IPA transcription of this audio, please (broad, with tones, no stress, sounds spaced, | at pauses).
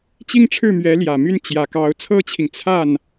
t͡ɕ i˥˧ ŋ ʈ͡ʂʰ ɻ̩˥˩ m ɥ ɛ˧˥ l j ä˨˩ m y˥˩ n t͡ɕ j ä˨˩ k ɑ˧˥ ʊ̯ t͡sʰ ɤ˥ t͡ɕʰ i˨ ŋ t͡sʰ a˥˩ n